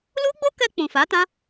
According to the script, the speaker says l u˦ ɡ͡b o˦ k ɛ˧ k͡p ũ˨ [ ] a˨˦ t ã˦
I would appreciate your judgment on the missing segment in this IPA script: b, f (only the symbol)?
f